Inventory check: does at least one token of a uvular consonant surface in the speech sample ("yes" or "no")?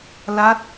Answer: no